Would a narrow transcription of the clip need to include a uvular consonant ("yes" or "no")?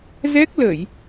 no